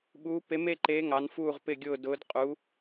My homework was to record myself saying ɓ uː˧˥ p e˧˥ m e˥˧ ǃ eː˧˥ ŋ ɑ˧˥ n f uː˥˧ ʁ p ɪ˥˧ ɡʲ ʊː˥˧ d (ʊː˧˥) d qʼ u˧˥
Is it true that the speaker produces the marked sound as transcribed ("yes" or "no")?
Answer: yes